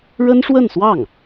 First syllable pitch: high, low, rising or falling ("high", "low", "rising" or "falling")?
high